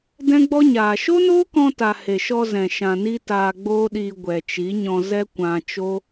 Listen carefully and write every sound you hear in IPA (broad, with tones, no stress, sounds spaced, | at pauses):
d ɛ̃˦ ɡ͡b ɔ˦ ɲ aː˨ ʃ o˦ n oː˦ k ɔ̃˧ t a˨ h e˨ ʃ ɔ˧ z ɛ̃˨ ʃ ã˨ n i˧ t aː˧ ɡ͡b oː˦ ɗ iː˧ ɡʷ ɛ˨ t͡ʃ i˨˦ ɲ ɔ̃˧ z ɛ˦ kʷ ã˧ t͡ʃ o˦